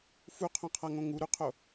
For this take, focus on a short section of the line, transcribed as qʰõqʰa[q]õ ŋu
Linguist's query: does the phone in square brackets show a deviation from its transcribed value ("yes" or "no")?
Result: yes